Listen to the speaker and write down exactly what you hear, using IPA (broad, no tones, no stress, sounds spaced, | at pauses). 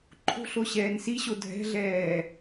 ǃʰ o̤ ɬ o ɕ ɛː n s i ɕ o dʱ ɛ̤ ɮ ɛː